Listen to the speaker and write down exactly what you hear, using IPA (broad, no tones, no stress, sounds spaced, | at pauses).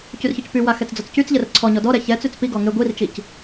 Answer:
c y r ç ɔ c p y w a x ɛ t͡s d͡z ɔ t͡s c y t͡s ʎ ɛ r ǀʰ ɔ ɲ ɔ d ɔ ɾ ɛ ç ɛ t͡s y t͡s p i ɡ ɔ ŋ e ɡʷ i r t͡ʃ i c